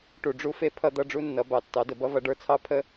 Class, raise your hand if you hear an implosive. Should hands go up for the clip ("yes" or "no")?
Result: no